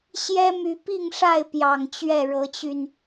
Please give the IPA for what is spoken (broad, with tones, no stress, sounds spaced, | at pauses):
ɕ j ɛ˦ m y˨˦ p i˥˨ ŋ ʂ a˥˨ ɪ̯ p j ɑ˨˩ ŋ t͡ɕ ɥ ɛ˥˨ ɻ ɤ˨˦ t͡ɕ y˧ n